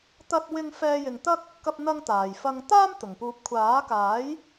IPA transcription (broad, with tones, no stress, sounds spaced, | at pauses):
t̪ ɐ˥ t̚ w ɪ˥ ŋ f ɛː˧ j ɪ˨ ŋ t̪ ɐ˥ k̚ | k ɐ˧ p̚ n̪ ɐ˧ ŋ t̪ aː˨˩ j f ɐ˧ ŋ t̪ aː˥ m t̪ ʊ˨˩ ŋ p uː˨˥ p̚ kʷʰ aː˨˥ k aː˨˥ j